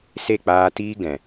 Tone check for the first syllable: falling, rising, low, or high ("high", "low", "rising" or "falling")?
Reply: falling